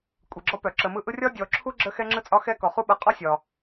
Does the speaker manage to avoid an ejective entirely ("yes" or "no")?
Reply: no